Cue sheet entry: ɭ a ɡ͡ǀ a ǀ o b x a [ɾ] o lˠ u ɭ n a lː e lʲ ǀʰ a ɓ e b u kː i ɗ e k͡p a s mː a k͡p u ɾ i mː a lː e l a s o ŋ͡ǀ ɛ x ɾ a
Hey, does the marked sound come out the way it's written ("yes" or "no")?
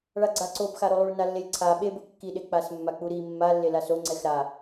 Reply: yes